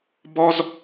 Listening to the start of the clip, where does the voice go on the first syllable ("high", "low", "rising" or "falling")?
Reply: high